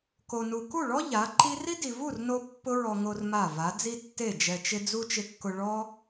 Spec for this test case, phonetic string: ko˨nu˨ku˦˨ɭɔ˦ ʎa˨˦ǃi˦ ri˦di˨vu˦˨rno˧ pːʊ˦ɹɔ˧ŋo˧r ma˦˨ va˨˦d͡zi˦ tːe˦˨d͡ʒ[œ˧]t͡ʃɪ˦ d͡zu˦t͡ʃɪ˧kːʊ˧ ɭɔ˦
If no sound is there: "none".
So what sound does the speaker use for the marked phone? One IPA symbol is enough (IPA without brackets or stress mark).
ɛ˧